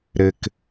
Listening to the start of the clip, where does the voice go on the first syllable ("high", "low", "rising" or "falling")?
low